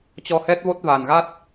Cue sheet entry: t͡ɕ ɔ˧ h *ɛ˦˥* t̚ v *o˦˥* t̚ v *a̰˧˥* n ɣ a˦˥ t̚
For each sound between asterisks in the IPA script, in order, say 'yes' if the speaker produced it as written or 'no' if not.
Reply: yes, yes, no

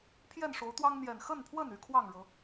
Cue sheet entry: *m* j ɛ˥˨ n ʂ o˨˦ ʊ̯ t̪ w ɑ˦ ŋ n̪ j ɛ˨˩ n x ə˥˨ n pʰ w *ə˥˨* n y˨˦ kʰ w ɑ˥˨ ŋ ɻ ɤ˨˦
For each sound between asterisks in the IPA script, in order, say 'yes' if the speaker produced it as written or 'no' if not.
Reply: no, yes

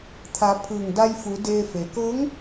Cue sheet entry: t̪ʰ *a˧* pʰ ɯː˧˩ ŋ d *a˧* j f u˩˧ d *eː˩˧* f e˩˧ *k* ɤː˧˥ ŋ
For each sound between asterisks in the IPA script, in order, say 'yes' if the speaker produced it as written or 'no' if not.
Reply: no, yes, no, yes

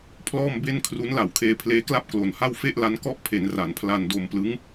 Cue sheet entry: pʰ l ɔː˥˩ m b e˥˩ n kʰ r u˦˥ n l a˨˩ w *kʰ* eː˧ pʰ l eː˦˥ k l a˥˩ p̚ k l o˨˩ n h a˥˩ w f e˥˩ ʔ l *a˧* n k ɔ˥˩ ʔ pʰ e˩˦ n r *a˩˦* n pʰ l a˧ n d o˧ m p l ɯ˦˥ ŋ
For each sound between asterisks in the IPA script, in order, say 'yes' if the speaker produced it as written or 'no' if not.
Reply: yes, no, yes

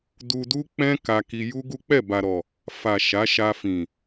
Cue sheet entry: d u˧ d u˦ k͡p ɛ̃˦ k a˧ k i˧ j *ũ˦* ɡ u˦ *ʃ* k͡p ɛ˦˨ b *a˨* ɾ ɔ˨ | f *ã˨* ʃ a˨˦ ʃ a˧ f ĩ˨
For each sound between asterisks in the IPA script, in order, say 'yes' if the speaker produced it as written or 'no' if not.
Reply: no, no, yes, no

